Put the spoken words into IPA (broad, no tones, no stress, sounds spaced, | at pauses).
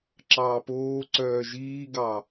ǁ ɑː p oː ǀ œː ʒ iː ɡ ɑ